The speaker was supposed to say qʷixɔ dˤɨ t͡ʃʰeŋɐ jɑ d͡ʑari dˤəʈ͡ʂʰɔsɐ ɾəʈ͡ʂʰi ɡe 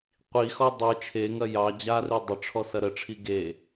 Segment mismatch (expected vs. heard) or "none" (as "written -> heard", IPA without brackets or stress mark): none